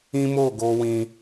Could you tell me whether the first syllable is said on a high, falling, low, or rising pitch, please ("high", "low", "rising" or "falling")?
high